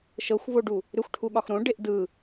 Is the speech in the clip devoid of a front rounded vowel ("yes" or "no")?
no